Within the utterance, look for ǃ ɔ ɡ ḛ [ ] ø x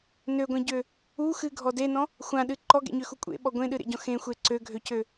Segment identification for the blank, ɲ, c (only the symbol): ɲ